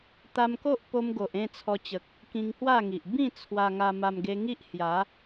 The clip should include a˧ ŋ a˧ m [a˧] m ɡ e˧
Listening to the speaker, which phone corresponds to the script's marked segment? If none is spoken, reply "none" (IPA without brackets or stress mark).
a˧